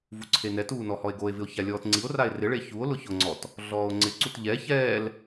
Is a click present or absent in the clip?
present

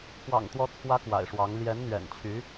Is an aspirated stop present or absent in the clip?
present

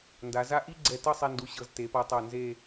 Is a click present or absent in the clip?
present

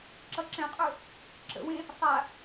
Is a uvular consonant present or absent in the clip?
present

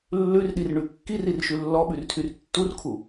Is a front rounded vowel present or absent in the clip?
present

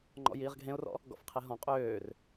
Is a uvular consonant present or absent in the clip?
present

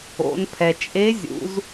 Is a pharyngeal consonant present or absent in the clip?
absent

